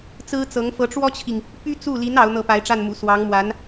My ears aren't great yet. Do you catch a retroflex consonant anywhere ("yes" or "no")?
yes